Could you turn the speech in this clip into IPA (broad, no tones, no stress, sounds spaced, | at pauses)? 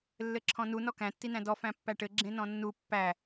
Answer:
lː ɘ ǁʰ ɔ̃ n u n ɔ k æ̃ tː i n æ̃ d ɔ f æ̃ pː æ ʈ ɘ ɡ͡ǁ ẽ n ɔ̃ nː u pː æ